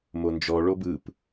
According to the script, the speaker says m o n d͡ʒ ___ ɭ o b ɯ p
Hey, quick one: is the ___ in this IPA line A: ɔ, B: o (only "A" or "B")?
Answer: A